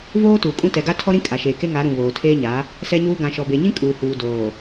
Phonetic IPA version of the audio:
v oː˦ t uː˨ kʼ ũ˦ t ɛ˨ ɡ a˦ tʰ ɔ˦ ɾ ĩ˦ kʼ a˨ ʃ eː˨ k e˦ ŋ a˨˦ ɾ ũ˨ β oː˨ tʰ eː˦ ɲ a˨˦ | s ɛ˦ ɲ uː˦ ɡ ã˨ ʃ ɔ˨ b e˨ ɲ ĩ˦ kʼ uː˨ h uː˨ d oː˨

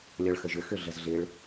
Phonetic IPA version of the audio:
lʲ ɔ ɭ x ə ʒ ʏ x ʏ ɮ ə z ɮ ɪ ɭ

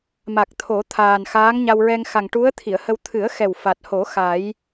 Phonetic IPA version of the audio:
m a˨˩ k̚ t̪ʰ o˨˩˦ t̪ʰ aː˨˩ n x aː˧˥ ŋ ɲ a˧ w ɹ ɛ˧ ŋ x a˨˩ ŋ ʈ u˧˥ ə̯ t̪ʰ i˨˩˨ ə̯ h ə˧ w t̪ʰ ɨ˨˩˦ ə̯ x ɛ˨˩ w f a˨˩ t̚ h o˨˩˦ x a˨˩˦ j

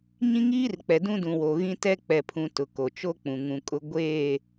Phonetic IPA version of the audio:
ɲ ĩ˦ ŋ iː˦ r k͡p ɛ˨ d ũ˦ d ũ˨ w o˨ ɣ ĩ˦ t ɛ˦ k͡p ɛ˨ pʰ ũ˨ t ʊ˨ k o˨ t͡ʃ o˦ k͡p ũ˨ ŋ ũ˨ kʼ ʊ˦ ɡʷ eː˦˨

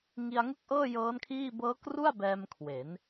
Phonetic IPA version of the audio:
ŋ i˧ a̯ ŋ ɯ˥˩ k̚ ʔ ɤː˥˩ j ɤː˦˥ n kʰ iː˥˩ b ɤː˦˥ k r u˥˩ a̯ b ɛː˧ m kʰ w e˩˦ n

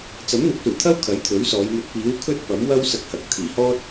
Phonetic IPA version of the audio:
t͡s ɐ˨˥ m n̪ ɪ˨˥ k̚ s uː˨˩ t̪ʰ ɐ˥ w kʰ ɐ˨˥ j t̪ʰ ɵ˨˥ ɥ s ɔː˨˧ j m ɵ˨ t̚ p iː˨˥ w kʰ ɵ˥ t̚ p ɐ˨˥ m w ɐ˥ w s ɐ˧ k̚ h ɐ˨ k̚ t̪ʰ iː˨˩ h ɔː˥ t̚

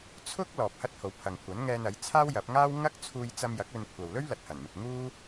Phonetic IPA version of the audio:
t͡sʰ ʊ˥ k̚ l ɔː˨ p̚ h ɐ˥ t̚ h o˨˥ w pʰ ɐ˨ ŋ kʷʰ ɐ˨˥ n ŋ ɛː˧ n ɐ˨˥ j t͡sʰ aː˥ w j ɐ˨˥ p̚ ŋ aː˥ w ŋ ɐ˥ k̚ t͡sʰ uː˧ j t͡s ɐ˧ m j ɐ˨˥ k̚ ɵ˧ n kʷʰ ɐ˨ w l ɵ˥ ɥ l ɐ˨ t̚ h ɐ˨˩ n m ɪ˨ k̚ ŋ uː˥

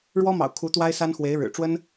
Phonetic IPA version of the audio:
ɻ w ɔ˥ m ɑ̰˨˩ ʊ̯ kʰ u˧˥ t̪ w a˥ ɪ̯ s a˥ n x w e˧˥ ɪ̯ ɻ ɻ̩˨˩ ʈ͡ʂ w ə˥ n

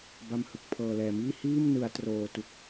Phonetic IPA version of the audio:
b a˧ m h ɯ˨˩ k̚ pʰ ɤː˨˩ l ɛː˨˩ m iː˥˩ h iː˥˩ m n ɯ˩˦ a̯ t r oː˧ t u˨˩ k̚

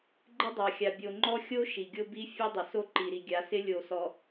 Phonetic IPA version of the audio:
ɡ͡ǃ ɪ˦ dˤ a˨ xʲ a˨ bʲ o˨ ŋ͡ǃ ɔ˦ xʲ o˦ ʃ i˨ ɡʲ o˦ b i˦ fʲ ɛ˦ dˤ ɪ˨ s o˦ ǃ i˨ ɾ i˨ ɡʲ a˨˦ s ɪ˦ lʲ o˨ s ɔ˨

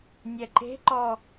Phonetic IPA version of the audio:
nʲ ɛ ǃ e̤ ǃ ɔ

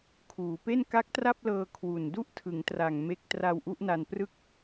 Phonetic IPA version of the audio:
kʰ uː˩˦ p e˥˩ n k a˦˥ k̚ t r a˥˩ p̚ l ɤː˧ kʰ w u˨˩ n d u˥˩ ʔ tʰ ɯ˩˦ ŋ t r a˨˩ ŋ m e˦˥ k̚ t r a˧ w ʔ u˦˥ ʔ n a˧ n p r ɯ˥˩ k̚

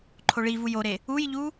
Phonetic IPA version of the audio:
ǃʰ o ɭ i v u j o ɾ e | u j ʎ u

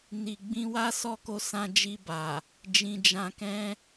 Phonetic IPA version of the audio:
n i˨ ɡ͡b ĩ˧ w a˦ s ɔ˦ k o˧ s ã˧ d͡ʒ i˧ b a˨ | d͡ʒ ĩ˨ d͡ʒ ã˧ k ɛ̃˦

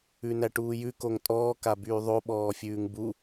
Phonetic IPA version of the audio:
ʉ n æ ʈ uː j ʉ k o ŋ tʼ ɔː k a b yː ðˤ o ɓ ɔː fʲ ʉː ŋ b u

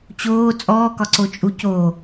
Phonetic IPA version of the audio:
t͡ɕ oː t͡sʼ ɔː k ɒ ǀ o t͡ʃʼ u c o

